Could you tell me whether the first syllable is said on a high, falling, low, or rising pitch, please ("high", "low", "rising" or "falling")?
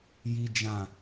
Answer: high